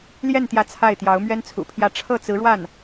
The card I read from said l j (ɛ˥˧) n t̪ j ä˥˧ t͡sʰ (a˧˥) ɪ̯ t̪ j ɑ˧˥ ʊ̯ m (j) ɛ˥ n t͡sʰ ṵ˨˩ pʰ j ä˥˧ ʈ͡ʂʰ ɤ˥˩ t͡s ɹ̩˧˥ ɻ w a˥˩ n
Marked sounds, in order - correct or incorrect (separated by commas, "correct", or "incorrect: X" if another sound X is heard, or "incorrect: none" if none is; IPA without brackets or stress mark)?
correct, incorrect: a˥˩, incorrect: ɥ